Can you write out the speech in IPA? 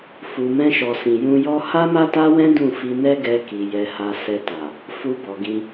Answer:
f u˨ m ɛ̃˧ ʃ ɔ˨ s ĩ˨ j ũ˧ j ɔ˦ h a˦ m a˦ t a˦ w ɛ̃˦ d ũ˦˨ f i˧ n ɛ˦ ɡ ɛ˧ k i˨ j ɛ˧ h a˧ s ɛ˧ t a˨ | f u˧ b ɔ˨ ɡ ĩ˧

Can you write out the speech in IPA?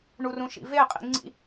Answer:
ɳ u r ũ ʃ ḭ v e qʼ ḭ ŋ͡ǀ ḭ

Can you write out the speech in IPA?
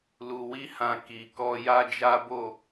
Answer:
l u˨ w i˧ h ã˨ k i˨ k ɔ˧ j a˦ d͡ʒ a˦ b o˦˨

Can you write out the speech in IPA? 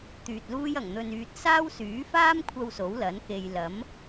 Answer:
t̪ yː˨ t̚ l uː˥ j ɐ˨˩ ŋ n̪ ɵ˨ n yː˨ t̚ s aː˥ w s yː˨˥ f aː˥ m kʷʰ ɐ˧ w s o˨˥ w l ɐ˨˥ n k e˧ j l ɐ˨˥ m

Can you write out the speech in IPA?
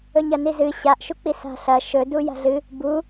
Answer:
ɵ ɲ ɐ n i z ɨ ɕ a ʔ ʃ u k͡p i s a̤ ɬ ɐ ʃ ɵ d u j a̤ ɮ ɨ | b u

